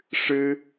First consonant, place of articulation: retroflex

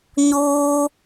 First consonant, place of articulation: palatal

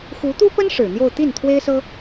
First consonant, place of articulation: velar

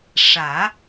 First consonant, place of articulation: retroflex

